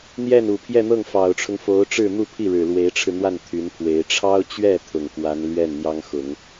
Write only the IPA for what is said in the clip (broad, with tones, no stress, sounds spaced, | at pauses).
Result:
n̪ j ɛ˥˩ n u˨˩ pʰ j ɛ˥˧ n̪ ɤ˥˩ ŋ f ɑ˨˩ ʊ̯ ʈ͡ʂʰ ʊ˦ ŋ f o˧˥ ʊ̯ ʈ͡ʂ ɻ̩˥˧ n̪ u˥˧ pʰ i˥˩ ɻ ɻ̩˨˩ l w e˧˥ ɪ̯ ʈ͡ʂʰ ɻ̩˧ n̪ w a˥˩ n t̪ʰ y˧˥ n pʰ w e˧˥ ɪ̯ ʈ͡ʂʰ ɑ˥ ʊ̯ t͡ɕ ɥ ɛ˥˩ t̪ʰ ʊ˨˩ ŋ k w a˧˥ n l ɥ ɛ˥˩ n n̪ j ɑ˥ ŋ x ʊ˨˩˦ ŋ